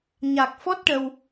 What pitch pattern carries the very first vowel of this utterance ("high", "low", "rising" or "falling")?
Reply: low